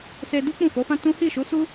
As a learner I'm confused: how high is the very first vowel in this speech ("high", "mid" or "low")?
mid